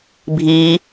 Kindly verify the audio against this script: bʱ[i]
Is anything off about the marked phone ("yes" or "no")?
no